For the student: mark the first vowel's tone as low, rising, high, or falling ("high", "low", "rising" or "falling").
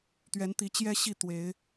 rising